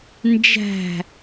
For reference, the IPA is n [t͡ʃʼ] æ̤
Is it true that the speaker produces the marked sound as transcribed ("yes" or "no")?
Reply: no